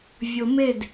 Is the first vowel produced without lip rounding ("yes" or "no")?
no